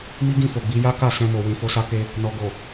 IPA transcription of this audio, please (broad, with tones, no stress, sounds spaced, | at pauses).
m i˦ ɡ ĩ˦˨ f o˨ ɡ͡b i˧ j a˦ k a˦˨ s ɛ̃˧ m o˨ w ĩ˧ f o˦ s a˧ k e˧ | n ɔ˨ ɡ o˨